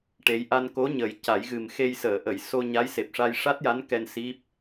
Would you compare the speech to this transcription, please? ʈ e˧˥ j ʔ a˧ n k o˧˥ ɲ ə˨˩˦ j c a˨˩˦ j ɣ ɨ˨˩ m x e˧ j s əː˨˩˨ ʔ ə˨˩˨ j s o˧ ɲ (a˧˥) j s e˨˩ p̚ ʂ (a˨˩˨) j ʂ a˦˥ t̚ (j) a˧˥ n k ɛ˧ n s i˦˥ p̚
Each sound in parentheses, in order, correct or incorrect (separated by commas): correct, incorrect, correct